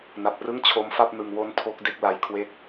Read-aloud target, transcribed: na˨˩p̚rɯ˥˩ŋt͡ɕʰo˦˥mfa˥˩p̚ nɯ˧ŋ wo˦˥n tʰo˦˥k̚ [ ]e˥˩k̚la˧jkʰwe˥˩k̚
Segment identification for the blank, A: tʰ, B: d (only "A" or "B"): B